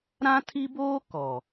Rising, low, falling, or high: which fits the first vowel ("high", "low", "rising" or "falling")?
high